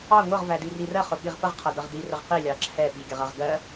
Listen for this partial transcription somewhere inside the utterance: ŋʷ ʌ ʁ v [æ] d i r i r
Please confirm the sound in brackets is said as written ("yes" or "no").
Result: yes